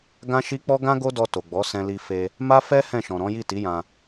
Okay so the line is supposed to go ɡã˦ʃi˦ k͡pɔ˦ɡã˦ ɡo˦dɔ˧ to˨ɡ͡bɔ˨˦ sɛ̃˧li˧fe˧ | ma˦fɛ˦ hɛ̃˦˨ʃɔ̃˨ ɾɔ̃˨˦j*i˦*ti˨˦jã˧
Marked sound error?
yes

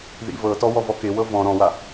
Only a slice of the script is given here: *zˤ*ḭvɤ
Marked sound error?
yes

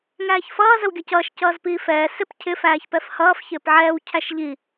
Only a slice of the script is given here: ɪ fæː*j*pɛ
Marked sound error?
yes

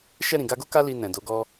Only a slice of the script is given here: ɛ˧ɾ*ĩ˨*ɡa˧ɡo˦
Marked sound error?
no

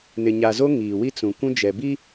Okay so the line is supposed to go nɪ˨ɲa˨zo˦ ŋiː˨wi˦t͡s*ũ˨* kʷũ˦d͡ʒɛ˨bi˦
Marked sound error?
no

